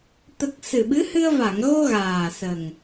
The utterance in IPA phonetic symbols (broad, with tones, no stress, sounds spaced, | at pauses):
t̪ ə˨˩ k̚ s ɨ˨˩ ɓ ɨ˧˥ h ɨ˧ ə̯ v a˨˩˨ ŋ ɣ o˧ ɣ aː˨˩ s ə˨˩ ŋ